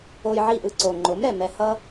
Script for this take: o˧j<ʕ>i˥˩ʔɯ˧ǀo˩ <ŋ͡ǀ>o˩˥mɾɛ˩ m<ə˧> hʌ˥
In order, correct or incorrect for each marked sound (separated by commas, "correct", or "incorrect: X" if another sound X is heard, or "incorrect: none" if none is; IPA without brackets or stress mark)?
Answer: correct, incorrect: ŋ͡ǃ, incorrect: ɛ˧